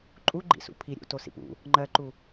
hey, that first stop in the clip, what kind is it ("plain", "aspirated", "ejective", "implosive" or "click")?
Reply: click